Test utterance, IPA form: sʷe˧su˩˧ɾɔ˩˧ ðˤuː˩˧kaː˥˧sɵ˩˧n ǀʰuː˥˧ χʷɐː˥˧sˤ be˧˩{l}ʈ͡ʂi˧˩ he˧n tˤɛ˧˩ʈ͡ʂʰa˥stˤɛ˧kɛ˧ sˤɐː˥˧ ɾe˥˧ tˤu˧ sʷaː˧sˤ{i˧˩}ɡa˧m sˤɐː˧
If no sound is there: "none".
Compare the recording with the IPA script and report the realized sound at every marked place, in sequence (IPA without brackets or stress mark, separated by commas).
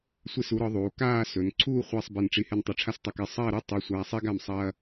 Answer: n, i˥